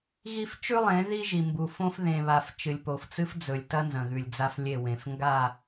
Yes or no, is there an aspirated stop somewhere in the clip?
no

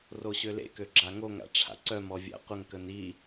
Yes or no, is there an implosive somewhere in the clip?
no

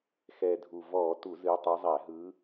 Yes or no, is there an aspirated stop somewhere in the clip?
no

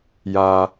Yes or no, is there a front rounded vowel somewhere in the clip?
no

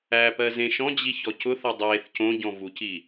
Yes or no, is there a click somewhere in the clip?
no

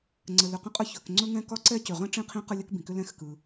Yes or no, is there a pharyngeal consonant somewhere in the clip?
no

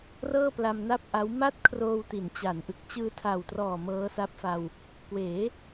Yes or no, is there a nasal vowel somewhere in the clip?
no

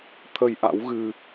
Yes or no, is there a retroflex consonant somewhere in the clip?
no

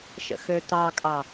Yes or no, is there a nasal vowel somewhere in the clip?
no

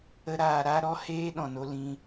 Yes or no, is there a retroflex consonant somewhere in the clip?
no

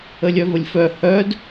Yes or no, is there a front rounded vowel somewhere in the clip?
yes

